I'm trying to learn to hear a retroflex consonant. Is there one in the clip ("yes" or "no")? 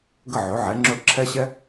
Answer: no